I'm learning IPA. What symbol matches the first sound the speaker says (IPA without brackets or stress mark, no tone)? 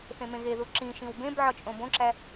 θ